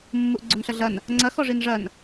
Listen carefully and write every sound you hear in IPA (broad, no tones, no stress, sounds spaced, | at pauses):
mː u ʔ ɡ͡ǀ o n ɬ ɐ ɮ ɐ n | ŋ͡ǀ ɐ x ɔ ʐ i n ʐ ɐ n